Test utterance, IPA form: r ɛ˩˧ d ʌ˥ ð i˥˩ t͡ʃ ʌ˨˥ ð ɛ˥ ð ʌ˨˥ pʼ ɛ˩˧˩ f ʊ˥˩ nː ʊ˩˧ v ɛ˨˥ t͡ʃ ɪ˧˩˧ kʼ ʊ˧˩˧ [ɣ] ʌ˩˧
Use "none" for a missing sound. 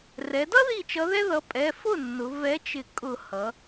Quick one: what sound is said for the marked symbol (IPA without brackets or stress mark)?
h